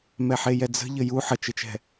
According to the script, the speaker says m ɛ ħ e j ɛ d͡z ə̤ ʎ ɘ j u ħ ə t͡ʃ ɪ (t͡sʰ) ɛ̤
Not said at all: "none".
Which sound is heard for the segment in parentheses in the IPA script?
t͡ʃ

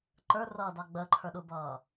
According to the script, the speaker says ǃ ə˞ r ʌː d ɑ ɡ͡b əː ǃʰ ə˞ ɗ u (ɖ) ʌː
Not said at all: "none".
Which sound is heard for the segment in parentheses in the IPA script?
b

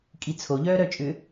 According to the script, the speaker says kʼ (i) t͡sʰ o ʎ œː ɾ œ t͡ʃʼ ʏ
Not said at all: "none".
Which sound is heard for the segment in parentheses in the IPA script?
i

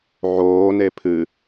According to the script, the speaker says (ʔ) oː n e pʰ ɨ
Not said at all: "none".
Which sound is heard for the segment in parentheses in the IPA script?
ʕ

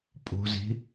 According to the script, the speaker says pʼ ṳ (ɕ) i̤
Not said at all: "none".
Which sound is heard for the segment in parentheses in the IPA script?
z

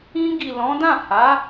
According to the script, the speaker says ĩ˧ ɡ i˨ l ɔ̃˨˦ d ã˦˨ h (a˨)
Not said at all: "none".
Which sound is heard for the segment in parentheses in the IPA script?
a˨˦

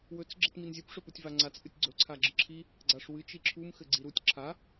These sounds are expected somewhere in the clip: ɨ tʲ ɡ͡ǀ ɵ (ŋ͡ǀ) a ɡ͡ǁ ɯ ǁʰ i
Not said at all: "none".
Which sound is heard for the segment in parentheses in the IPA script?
ǀʰ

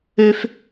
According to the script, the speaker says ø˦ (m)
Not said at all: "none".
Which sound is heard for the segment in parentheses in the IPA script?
f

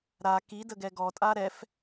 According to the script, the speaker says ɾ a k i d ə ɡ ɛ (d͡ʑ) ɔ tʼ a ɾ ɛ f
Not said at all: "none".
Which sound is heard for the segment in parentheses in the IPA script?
ɡ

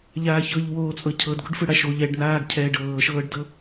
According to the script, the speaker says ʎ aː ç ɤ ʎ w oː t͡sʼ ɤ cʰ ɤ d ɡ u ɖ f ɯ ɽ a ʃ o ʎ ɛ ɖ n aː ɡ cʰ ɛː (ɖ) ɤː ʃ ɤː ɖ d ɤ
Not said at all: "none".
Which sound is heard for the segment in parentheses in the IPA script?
ɖ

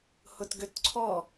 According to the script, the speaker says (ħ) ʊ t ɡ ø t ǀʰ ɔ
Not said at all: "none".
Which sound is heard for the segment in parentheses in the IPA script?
h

